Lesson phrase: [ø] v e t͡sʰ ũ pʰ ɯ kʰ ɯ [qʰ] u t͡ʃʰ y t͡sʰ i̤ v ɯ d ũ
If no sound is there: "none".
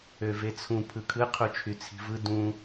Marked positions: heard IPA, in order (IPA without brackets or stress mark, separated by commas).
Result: ø, qʰ